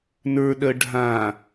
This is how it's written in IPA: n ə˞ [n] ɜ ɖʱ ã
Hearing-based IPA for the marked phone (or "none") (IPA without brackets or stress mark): ɗ